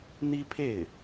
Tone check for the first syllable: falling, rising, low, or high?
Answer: high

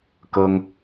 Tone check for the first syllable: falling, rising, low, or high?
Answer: high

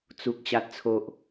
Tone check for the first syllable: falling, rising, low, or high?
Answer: low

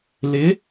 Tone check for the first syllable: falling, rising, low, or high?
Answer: rising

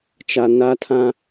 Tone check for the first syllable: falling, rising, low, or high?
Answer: low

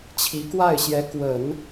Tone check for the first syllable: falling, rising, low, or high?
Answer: rising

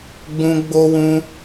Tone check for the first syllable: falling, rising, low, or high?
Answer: high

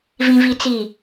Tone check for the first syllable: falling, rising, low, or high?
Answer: high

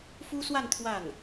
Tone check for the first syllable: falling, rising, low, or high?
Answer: high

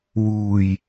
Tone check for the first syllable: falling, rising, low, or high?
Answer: low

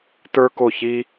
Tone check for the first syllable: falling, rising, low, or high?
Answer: high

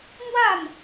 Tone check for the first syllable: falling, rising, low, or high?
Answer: falling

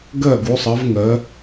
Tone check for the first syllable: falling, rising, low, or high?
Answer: falling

